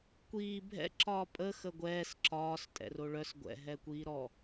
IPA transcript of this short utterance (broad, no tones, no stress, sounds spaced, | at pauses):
kʷ iː bʱ ɛ̰ ǁ ɒː pʼ ə x ə ɡʷ ɛː s ǁ ɒː s tʼ ɛ̰ r o ɭ œ s ɡʷ ɛ̰ ɦ ɛː kʷ iː ɾ ɔ